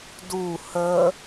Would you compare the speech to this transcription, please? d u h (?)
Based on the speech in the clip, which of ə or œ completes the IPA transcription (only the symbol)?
ə